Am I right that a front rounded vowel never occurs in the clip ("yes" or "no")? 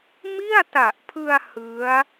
yes